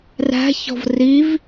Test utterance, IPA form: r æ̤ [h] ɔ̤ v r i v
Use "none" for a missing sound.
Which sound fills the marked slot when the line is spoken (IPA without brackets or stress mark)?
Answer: ç